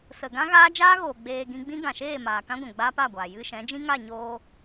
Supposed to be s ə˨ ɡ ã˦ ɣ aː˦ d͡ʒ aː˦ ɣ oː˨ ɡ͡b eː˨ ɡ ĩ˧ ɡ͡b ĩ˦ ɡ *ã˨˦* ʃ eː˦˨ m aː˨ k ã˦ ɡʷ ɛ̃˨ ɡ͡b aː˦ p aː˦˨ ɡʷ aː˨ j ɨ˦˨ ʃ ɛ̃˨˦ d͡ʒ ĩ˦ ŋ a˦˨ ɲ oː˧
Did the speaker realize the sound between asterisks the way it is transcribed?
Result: no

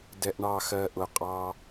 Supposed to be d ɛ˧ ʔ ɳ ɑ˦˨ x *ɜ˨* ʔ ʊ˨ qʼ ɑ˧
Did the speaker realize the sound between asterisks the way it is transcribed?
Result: no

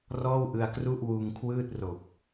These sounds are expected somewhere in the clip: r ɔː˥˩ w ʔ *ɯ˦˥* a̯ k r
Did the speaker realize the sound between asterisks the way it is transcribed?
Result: no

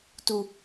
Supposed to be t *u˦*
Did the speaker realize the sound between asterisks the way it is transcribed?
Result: yes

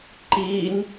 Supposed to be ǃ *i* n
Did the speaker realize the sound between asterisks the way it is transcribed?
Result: yes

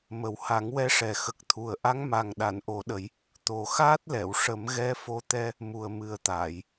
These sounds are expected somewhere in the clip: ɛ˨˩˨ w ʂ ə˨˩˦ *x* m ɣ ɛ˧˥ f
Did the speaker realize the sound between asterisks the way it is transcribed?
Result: no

